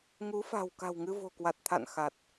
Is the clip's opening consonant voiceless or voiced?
voiced